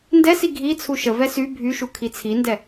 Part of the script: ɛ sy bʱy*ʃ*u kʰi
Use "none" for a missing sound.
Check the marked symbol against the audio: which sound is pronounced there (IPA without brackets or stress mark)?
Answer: ʃ